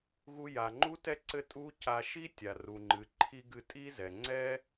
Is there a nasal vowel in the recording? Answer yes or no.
no